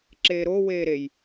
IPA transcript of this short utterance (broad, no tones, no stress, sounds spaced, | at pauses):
ǁ eː ɾ oː w eː ɾ e j